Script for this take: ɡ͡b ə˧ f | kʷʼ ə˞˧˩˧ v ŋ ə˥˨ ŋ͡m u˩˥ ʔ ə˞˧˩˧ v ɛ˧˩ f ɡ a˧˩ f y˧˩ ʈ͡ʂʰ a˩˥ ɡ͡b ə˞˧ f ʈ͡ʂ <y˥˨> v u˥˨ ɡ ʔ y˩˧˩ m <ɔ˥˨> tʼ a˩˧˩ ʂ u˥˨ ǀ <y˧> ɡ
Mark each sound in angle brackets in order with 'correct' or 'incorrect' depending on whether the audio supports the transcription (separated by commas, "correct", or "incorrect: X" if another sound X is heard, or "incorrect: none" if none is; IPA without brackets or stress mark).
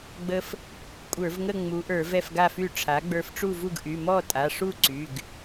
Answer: incorrect: u˥˨, correct, incorrect: y˩˧˩